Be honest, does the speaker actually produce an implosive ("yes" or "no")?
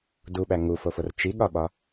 yes